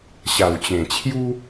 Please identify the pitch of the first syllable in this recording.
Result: low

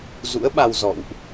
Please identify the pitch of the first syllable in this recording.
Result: rising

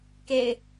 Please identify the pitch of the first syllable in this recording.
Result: low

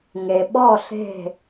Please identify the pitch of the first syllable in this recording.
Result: low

